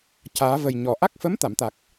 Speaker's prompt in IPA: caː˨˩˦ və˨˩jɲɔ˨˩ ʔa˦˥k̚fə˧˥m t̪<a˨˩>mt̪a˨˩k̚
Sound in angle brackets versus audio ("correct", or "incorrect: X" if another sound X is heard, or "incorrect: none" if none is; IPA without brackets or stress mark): incorrect: a˨˩˨